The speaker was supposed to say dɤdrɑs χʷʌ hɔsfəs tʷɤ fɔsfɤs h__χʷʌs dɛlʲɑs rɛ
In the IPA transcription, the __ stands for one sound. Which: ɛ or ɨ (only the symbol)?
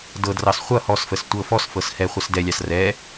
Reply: ɛ